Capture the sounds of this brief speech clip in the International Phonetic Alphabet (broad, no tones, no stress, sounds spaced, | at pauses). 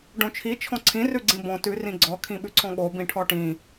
ɖ õ t͡ʃʰ i t͡ʃʰ ɔ̃ ǀʰ ĩ r ʉ ɡ͡ǀ ĩ b ɔ̃ t ʉ r ĩ ɡ͡ǀ ɔ kʰ ĩ ɓ ʉ ǀʰ ɔ̃ ɠ o b ĩ ʈʰ ɔ ʈ ĩ